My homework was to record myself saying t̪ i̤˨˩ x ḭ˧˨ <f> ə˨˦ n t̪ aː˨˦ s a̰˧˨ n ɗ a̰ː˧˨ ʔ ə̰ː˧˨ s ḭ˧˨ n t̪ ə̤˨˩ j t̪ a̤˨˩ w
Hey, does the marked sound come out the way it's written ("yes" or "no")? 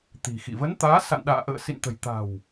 no